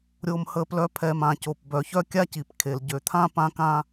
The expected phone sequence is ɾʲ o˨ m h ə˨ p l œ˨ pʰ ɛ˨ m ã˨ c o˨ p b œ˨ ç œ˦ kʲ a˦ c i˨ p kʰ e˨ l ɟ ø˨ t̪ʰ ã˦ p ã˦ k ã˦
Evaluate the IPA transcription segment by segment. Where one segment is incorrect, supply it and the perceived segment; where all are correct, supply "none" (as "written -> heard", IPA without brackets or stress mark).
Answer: none